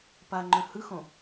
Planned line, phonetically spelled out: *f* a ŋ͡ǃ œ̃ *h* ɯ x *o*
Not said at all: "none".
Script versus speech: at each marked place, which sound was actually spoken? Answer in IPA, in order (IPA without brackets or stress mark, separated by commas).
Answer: p, h, õ